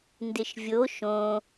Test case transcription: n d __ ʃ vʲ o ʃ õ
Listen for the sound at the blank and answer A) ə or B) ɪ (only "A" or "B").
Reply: B